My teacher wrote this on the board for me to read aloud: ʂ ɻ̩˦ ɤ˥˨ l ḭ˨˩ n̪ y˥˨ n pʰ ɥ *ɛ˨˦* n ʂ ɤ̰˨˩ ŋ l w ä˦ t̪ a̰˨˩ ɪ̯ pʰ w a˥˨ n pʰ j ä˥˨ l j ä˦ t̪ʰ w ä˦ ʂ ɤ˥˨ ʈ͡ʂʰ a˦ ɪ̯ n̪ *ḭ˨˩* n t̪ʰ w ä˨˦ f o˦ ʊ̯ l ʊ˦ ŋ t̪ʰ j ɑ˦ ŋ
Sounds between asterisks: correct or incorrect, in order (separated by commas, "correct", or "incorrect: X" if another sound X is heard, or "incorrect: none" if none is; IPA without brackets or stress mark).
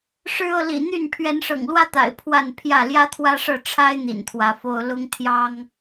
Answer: correct, correct